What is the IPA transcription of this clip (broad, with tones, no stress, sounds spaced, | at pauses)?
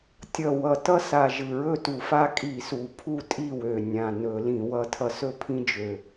tʲ ʌ˨˩ w ʌ˨˩ t ʌ˦ s a˨˩ ʒ ɯ˨˩ ɹ ɵ˥˨ t u˧˩˧ f a˦ kʼ i˧˩˧ s u˨˩ pʰ u˥˨ tʼ i˥˨ w ø˨˩ nʲ ã˨˩ n ɵ˧˩˧ l ĩ˧˩˧ w ʌ˦ tʰ ʌ˦ s ɵ˥˨ pʰ ĩ˦ d͡ʒ ø˨˩